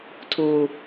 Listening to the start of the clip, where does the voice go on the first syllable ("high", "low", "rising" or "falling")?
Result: low